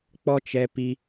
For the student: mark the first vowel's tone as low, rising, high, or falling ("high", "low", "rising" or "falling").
high